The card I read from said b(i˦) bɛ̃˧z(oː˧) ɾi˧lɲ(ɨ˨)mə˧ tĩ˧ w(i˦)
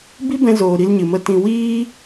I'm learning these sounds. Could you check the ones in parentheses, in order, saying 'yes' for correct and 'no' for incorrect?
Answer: yes, no, yes, no

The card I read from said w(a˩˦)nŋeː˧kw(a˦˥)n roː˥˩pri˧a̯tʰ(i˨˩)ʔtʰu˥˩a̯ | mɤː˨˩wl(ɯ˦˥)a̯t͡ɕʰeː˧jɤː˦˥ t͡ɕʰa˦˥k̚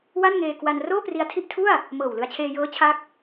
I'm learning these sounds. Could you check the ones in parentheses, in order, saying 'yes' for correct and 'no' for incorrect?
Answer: no, no, no, no

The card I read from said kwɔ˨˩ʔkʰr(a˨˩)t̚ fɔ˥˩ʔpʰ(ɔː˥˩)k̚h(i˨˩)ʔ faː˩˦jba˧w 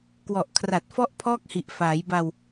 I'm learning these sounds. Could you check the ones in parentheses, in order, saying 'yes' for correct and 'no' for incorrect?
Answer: yes, yes, yes

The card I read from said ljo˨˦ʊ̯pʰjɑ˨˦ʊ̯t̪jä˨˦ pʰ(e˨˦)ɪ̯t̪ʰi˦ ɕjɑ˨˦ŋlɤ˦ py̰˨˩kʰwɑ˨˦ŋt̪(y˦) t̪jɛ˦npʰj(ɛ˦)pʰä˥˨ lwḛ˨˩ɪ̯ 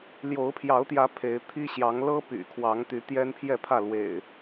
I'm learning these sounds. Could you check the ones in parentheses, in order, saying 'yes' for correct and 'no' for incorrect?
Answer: yes, no, no

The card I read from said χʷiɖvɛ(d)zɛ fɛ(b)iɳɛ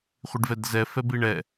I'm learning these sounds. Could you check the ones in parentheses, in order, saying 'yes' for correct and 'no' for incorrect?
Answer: yes, yes

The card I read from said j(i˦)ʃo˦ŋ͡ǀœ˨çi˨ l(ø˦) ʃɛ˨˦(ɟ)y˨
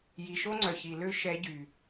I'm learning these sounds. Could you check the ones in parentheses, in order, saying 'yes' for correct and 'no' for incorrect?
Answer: no, yes, yes

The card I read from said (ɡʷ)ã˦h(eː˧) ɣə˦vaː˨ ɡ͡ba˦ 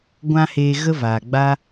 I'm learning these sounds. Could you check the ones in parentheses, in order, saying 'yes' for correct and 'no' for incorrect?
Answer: yes, yes

